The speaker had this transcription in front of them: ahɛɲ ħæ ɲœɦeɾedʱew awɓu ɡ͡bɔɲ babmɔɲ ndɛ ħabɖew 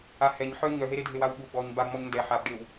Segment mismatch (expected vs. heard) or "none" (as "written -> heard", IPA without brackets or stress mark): æ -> œ